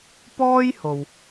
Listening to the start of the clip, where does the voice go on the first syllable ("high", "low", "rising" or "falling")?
high